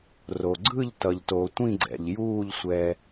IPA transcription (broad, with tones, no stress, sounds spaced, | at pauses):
r o˩ ɡ͡ǀ ɯ˥˨ ʎ t ʌ˩ ʎ t o˩ tʷ ĩ˥˨ ɡ͡ǀ ɛ̰˩ ʎ j uː˥˨ ʎ sʷ ɛ˩